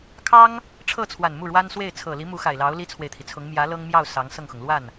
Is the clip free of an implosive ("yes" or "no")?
yes